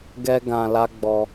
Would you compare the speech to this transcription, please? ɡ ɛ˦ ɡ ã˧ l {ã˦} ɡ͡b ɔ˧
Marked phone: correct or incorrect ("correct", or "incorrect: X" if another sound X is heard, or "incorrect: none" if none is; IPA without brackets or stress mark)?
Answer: incorrect: a˦